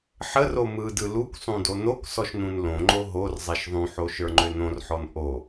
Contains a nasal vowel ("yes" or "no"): yes